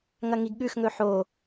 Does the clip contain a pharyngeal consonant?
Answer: yes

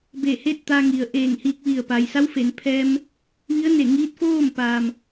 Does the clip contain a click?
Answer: no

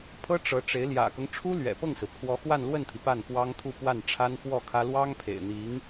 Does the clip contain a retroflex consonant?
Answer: yes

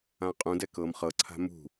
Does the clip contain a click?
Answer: yes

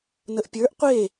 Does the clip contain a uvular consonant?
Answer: yes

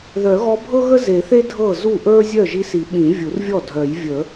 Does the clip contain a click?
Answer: no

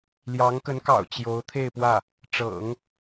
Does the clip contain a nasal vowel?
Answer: no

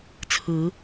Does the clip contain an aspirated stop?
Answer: yes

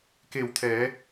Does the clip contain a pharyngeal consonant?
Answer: no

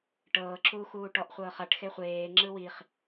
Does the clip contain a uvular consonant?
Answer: yes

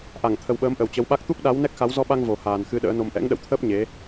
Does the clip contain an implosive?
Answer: yes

